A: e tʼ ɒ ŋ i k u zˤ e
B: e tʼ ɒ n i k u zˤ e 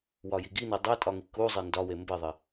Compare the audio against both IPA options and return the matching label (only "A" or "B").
A